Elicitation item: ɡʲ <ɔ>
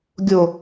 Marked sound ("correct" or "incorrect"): incorrect